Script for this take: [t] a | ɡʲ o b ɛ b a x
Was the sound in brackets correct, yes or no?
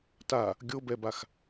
yes